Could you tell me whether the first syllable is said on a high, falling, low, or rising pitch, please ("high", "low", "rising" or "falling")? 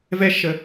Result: high